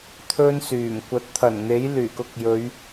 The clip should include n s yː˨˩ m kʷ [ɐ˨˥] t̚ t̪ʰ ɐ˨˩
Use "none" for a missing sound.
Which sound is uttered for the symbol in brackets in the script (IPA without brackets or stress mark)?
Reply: ɐ˨˥